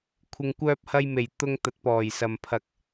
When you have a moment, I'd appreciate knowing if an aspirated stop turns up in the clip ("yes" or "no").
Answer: yes